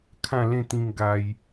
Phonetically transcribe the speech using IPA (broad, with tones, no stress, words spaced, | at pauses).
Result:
kʰã˥˧lẽ˥˧t̪ĩ˧ŋ ɡa˧j